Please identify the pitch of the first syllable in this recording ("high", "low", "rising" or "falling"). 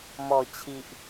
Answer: low